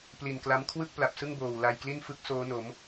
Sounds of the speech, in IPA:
p l i˨˩ n k l a˦˥ m kʰ w ɯ˥˩ k̚ p l a˨˩ p̚ s ɯ˥˩ ŋ b oː˨˩ w l a˧ j k l i˥˩ n f ɯ˦˥ k̚ s oː˦˥ n o˩˦ m

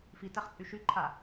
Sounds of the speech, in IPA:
f i t æ χ t͡sʼ y ʃ y ǃʰ a

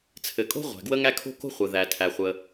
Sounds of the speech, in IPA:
t͡sʰ ɘ˩ kʼ o̤˥ ʁʷ æ̤˩ ɡ w ə˥ ŋ æ˥ kʰ o̤˥ k o̤˥ χʷ ɘ˩ ð æ˩ tʰ æ˩ χʷ ə˩

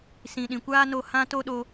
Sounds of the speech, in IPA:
s ĩ˨ ɗ ĩ˨ kʷ aː˦ n o˧ h ã˦ t o˦ ɗ o˧

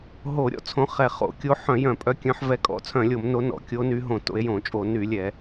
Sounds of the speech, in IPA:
ɦ o˧˩˧ ɾʲ ɔ̰˨˦ t͡sʰ õ˨˦ χ ɛ˧˩˧ χ o̰˧˩˧ kʲ o˨˦ ħ œ̃˧˩˧ j œ̃˧˩˧ pʼ œ˨˦ kʲ œ̃˨˦ ħ v ɛ˨˦ kʼ ɔ̰˧˩˧ t͡sʰ œ̃˧˩˧ lʲ o˧˩˧ m n o˨˦ n ɔ̰˧˩˧ kʲ o˨˦ n y˨˦ ɦ õ˧˩˧ t o̰˨˦ e̯ j õ˧˩˧ t͡ʃʼ o˧˩˧ n y˧˩˧ lʲ ɛ˧˩˧

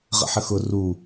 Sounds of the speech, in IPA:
ʁ ə̰ ħ ə x ʊ r u

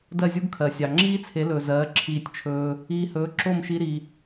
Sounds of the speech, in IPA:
d ɜ˥˩ zʲ u˥ ɡ kʰ ɜ˩ sʲ ɑ˩ ŋ͡ǁ iː˥ t͡sʰ e˩˥ l ɵː˩ z ɜː˩˥ ǁʰ iː˧ tʲ t͡ʃʰ ɵː˧ | iː˧ h ɵː˩˥ ǁ o˥˩ m ʃ i˧ ɾ i˩

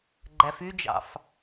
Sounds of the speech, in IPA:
ɡ͡ǃ æ f y d͡ʒ ɑ̰ f

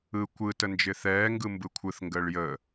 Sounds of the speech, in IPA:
ɯ kʷ ɯ t ə n d͡ʒ ɪ θ ɛː ŋ ɡ ɯ m b ɯ kʷʰ ɯ θ ŋ ɡ əː ɭ j ə

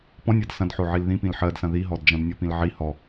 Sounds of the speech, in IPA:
p ɔ̃ nʲ ɜ d s ɐ̃ d ħ o ʕ i l ð ĩ p ĩ l ħ ɜ d s ɐ̃ ð i ɦ ɔ d d͡ʒ ɐ̃ d nʲ o p ĩ l ʕ i h ɔ

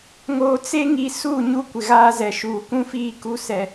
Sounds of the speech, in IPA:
ŋ oː˨ t͡s e˦ ŋ i˨ s u˦˨ ɲ u˦ kʷ ɪ˨ ɣ aː˦ z ɛ˨ ʃ uː˨ k ũ˦ f iː˦˨ k u˦ s ɛ˦

